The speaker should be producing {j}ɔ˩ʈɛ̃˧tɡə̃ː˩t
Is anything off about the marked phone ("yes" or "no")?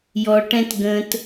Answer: no